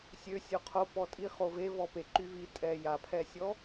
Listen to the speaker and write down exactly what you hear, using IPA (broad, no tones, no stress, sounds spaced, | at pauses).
sʲ ø sʲ o qʰ o p ɔ tʼ i χ o v e v ɔ p e ǃ y v i tʼ ɛ j a pʰ ɛ sʲ ɔ